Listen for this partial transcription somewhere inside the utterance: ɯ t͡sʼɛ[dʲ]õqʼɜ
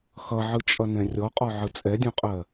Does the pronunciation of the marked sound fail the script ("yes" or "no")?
no